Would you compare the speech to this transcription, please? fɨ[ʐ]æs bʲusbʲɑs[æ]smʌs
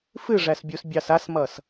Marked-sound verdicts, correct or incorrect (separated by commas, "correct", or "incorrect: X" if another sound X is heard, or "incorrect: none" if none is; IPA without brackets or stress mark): correct, incorrect: a